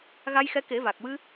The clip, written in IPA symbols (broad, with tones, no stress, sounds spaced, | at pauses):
ɣ a˧ j x ɛ˧˥ k e˨˩˦ v a˨˩ k̚ w ɨ˧